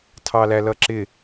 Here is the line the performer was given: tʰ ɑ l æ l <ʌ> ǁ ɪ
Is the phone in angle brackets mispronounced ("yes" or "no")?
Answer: no